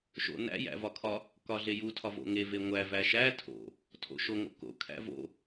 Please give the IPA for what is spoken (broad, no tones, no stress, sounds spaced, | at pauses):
ʃ o̰ n æ̰ j æ̰ v ɒ kʰ ɒ | k ɒ ɮ e j u tʰ ɒ v o̰ ŋ e v e ŋʷ æ v æ ʃ æ tʰ o̰ | tʰ o̰ ʃ o ŋ o̰ k o̰ kʰ æ̰ v o̰